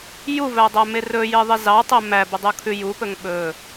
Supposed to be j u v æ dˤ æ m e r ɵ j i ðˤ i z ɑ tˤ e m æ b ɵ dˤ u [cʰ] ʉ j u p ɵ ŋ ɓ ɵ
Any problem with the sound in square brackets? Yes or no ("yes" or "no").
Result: yes